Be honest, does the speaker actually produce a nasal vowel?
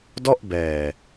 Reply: no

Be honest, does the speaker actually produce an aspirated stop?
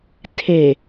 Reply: yes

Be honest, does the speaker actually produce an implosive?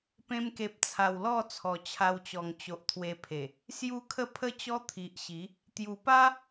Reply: no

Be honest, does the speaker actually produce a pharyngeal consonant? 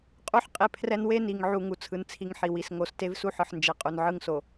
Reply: yes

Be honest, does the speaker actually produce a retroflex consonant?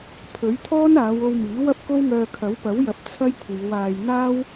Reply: no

